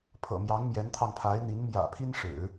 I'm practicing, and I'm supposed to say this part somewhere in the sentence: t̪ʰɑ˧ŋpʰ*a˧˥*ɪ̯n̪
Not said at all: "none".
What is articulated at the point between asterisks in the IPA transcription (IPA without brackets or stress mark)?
a˧˥